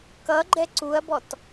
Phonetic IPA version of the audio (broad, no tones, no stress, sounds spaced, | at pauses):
k ʌ ɡ͡ǃ ɛ ǀ u ɐ̯ b ɔ t